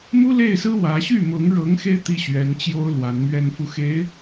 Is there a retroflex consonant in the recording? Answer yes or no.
yes